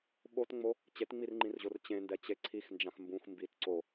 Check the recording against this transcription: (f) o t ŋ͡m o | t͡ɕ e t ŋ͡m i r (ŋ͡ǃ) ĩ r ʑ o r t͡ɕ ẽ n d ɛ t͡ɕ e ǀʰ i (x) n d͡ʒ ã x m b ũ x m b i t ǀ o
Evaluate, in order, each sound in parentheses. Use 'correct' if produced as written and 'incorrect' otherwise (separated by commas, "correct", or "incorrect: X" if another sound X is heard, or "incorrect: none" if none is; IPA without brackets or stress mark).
incorrect: ɓ, correct, correct